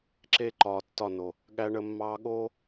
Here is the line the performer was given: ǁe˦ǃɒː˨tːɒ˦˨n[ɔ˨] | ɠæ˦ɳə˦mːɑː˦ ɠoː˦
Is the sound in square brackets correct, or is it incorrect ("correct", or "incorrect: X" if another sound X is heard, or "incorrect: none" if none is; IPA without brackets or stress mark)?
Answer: incorrect: o˨